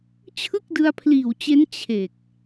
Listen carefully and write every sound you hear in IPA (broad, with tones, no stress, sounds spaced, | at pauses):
t͡ɕʰ ɯ˥˩ k̚ d ɯ˧ a̯ pʰ l iː˨˩ w t͡ɕ e˦˥ n t͡ɕʰ e˨˩ k̚